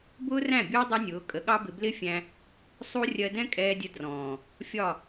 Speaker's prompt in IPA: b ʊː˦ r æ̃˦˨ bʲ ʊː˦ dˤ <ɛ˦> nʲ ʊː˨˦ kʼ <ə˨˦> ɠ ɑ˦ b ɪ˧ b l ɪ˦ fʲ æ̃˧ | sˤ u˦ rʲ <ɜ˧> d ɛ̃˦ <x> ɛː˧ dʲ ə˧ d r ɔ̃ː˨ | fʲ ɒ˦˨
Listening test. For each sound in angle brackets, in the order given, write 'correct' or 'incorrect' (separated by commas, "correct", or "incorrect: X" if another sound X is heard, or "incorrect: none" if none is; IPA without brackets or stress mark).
correct, correct, correct, incorrect: kʼ